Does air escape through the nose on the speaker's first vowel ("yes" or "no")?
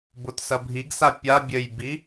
no